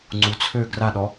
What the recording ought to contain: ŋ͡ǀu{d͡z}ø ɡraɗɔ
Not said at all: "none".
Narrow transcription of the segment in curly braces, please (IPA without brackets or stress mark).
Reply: t͡sʰ